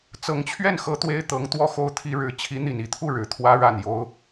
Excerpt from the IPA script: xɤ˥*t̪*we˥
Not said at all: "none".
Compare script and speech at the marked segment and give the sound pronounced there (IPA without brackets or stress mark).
t̪